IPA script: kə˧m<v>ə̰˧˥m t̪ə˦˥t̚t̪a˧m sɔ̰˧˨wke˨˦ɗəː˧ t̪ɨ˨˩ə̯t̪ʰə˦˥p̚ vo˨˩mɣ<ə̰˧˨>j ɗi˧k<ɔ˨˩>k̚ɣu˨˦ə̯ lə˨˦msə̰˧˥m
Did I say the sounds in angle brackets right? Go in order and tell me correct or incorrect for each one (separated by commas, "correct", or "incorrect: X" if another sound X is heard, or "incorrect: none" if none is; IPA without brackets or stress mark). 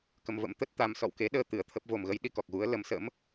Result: correct, incorrect: ə˨˦, correct